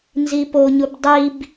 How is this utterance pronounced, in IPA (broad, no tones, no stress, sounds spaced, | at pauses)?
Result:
n z i p o ɲ u b dˤ i b